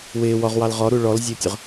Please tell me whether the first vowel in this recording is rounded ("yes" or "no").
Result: no